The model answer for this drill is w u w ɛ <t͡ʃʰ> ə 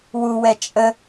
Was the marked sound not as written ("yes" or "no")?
yes